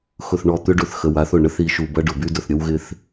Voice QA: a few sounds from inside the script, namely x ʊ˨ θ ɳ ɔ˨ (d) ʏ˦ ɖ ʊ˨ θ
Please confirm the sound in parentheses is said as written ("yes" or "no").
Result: no